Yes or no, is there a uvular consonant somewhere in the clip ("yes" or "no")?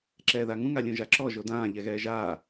no